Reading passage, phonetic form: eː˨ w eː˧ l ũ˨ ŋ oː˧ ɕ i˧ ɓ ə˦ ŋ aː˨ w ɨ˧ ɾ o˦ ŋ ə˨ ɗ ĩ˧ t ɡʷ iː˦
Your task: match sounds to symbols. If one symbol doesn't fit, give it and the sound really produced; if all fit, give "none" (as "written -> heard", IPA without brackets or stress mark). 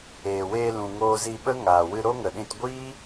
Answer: ɕ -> z